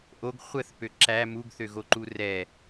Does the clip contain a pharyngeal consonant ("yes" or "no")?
no